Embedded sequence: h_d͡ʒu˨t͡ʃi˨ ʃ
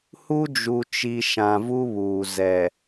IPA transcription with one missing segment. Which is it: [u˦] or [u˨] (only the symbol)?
u˦